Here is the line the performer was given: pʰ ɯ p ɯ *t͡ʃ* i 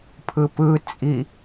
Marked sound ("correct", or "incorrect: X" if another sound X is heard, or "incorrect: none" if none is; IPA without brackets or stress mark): incorrect: t͡sʼ